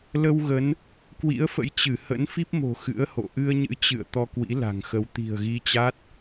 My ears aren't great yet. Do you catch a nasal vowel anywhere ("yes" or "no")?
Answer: no